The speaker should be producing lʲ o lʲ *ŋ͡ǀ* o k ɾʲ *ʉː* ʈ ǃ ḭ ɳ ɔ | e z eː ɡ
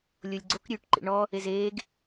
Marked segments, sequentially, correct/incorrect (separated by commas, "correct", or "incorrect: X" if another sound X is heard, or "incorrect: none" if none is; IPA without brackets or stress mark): incorrect: ɡ͡ǀ, correct